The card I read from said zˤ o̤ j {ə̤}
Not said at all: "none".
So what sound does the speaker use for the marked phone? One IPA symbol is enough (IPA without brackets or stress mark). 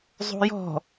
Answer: ɔ̤